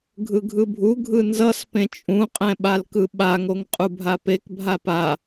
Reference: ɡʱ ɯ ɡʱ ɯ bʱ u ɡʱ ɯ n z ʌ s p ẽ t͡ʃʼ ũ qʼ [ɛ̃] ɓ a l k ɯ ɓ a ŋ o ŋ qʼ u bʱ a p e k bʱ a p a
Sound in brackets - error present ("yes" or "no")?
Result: no